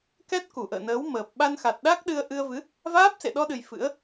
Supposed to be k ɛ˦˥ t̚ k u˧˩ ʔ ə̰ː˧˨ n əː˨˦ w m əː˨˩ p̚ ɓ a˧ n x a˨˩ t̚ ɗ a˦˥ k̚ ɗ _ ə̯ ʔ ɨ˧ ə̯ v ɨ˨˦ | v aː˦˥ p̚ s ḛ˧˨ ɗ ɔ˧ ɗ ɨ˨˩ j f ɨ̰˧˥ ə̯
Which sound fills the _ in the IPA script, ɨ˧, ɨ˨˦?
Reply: ɨ˧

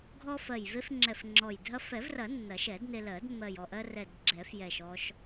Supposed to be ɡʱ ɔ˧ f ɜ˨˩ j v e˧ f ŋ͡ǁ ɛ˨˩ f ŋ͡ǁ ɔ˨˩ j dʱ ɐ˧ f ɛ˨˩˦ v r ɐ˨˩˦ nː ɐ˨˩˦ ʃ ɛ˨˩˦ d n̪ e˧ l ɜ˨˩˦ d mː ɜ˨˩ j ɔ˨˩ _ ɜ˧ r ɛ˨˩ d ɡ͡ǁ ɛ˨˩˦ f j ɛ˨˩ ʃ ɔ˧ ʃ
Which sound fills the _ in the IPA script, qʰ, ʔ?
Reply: ʔ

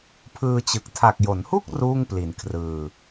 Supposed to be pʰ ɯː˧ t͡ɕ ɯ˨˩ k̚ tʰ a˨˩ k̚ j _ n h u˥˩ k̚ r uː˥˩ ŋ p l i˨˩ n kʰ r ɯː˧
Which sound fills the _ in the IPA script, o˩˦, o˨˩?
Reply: o˩˦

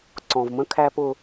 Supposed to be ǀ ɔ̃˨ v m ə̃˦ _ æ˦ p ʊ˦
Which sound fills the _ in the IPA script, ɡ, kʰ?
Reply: kʰ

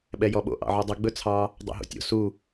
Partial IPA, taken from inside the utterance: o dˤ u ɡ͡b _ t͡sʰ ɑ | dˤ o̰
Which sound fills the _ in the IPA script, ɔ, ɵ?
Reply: ɵ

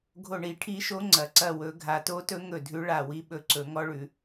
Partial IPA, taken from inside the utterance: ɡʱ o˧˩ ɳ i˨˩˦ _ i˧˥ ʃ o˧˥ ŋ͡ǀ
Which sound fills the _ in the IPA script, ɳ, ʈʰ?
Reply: ʈʰ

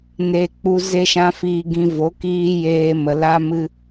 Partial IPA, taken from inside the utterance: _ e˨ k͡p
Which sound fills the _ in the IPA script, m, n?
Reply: n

